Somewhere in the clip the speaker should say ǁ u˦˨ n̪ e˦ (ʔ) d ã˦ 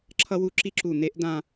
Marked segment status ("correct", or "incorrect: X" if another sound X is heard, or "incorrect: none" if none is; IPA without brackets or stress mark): correct